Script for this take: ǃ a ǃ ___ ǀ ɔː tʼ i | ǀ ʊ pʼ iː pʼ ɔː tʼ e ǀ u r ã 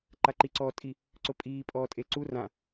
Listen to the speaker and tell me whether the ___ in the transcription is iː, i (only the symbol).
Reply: i